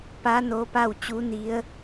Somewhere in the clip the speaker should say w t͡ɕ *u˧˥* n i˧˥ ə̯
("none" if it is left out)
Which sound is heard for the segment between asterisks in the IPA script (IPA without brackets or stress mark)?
u˧˥